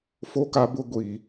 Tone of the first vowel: high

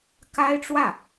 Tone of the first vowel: high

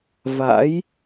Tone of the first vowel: rising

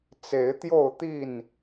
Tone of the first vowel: rising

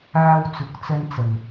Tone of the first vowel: high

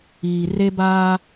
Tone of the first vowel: low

